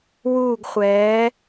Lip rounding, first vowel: rounded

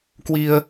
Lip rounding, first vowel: unrounded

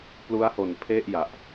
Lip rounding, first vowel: rounded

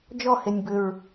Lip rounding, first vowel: rounded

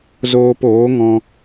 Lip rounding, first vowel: rounded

